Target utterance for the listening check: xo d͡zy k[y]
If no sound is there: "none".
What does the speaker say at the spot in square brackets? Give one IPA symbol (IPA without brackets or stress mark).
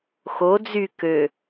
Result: ø